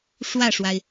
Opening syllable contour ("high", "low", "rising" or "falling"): falling